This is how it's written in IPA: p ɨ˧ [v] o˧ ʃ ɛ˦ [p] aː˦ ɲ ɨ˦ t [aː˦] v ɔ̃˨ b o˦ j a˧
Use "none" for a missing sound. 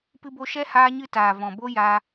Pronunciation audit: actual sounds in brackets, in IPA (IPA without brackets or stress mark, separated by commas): b, h, aː˨